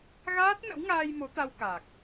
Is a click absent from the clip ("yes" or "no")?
yes